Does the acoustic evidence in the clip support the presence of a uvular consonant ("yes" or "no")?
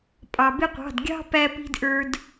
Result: yes